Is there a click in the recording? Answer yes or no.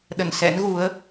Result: no